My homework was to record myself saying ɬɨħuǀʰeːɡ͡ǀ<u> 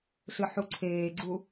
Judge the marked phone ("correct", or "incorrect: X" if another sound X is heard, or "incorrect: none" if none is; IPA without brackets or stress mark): correct